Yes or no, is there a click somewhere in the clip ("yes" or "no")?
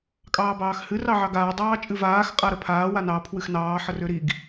no